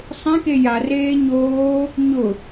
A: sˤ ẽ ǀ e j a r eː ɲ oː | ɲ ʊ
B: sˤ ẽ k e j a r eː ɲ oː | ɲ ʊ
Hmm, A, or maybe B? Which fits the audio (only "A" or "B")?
B